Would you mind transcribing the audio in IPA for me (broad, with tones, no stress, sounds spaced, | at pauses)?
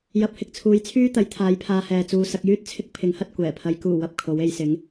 j ɐ˨˥ p̚ h ɪ˨ k̚ t͡sʰ uː˨˧ j t͡sʰ yː˥ t̪ ɐ˨˥ j t̪ʰ aː˨˥ j pʰ aː˧ h ɛː˨ t͡s uː˨ s ɐ˧ k̚ j yː˥ t̚ t͡sʰ ɪ˥ k̚ pʰ ɪ˨˥ ŋ h ɐ˧ t̚ kʷ ɛː˨˩ pʰ ɐ˨˧ j k uː˨˩ w ɐ˨ p̚ kʰ o˨˥ w e˨˧ j s ɪ˨˥ ŋ